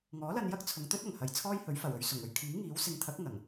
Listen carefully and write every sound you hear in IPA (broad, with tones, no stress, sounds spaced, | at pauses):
ŋ ɔː˨˥ l ɐ˧ n j ɐ˥ k̚ t͡sʰ ʊ˨˧ ŋ t̪ ɵ˥ t̚ ɐ˨˩ ŋ h ɐ˨ j t͡sʰ ɔː˥ j h ɵ˨˥ ɥ f ɐ˨˩ w ɵ˨˧ ɥ s ʊ˨˩ ŋ ɵ˧ ɥ kʰ iː˨˥ ŋ iː˨˥ w s ɪ˨˧ ŋ t̪ʰ ɐ˨˥ k̚ ŋ ɐ˨˩ ŋ